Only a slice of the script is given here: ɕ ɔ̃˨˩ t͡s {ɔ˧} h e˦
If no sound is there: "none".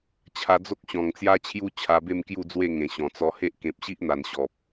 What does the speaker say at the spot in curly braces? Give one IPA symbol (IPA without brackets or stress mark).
ɔ˧